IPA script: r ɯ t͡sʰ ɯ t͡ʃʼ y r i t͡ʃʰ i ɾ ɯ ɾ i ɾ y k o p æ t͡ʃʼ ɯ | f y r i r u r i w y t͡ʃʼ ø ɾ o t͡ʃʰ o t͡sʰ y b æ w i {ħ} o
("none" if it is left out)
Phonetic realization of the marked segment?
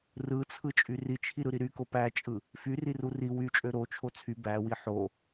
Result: ħ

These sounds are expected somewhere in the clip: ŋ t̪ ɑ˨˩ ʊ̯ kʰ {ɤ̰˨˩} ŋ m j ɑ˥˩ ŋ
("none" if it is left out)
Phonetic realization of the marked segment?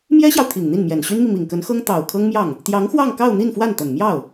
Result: ɤ˥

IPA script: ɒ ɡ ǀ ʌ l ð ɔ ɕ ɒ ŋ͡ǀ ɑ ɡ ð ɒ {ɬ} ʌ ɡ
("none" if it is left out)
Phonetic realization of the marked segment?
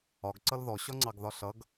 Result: ɬ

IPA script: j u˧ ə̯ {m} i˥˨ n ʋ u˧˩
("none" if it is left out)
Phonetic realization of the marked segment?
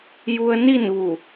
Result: n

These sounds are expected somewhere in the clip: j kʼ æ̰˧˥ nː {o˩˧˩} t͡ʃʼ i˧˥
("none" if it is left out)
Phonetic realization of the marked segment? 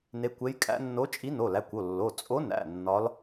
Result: o˧˥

